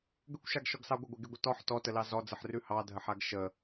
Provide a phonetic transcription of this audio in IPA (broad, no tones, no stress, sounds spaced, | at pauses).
ɡ ə kʷ ʃ a ɡ ʃ ɔ ɡ s ɑ ɡʷ ə ɡʷ e ɡ e ɡʷ ə t ɔ ħ t ɔ t ə l ɑ z ɔ d͡z ə ħ r ʉ h ɑ dʱ ə ħ a ɡ ʃ ə